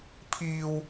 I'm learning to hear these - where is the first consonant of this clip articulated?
lips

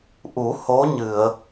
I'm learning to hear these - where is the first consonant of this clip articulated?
throat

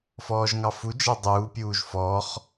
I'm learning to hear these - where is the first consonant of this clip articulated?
lips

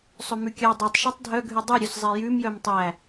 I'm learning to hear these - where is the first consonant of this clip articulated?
tongue tip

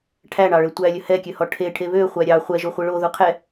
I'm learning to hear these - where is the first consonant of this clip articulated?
retroflex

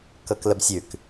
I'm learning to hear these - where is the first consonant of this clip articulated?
velum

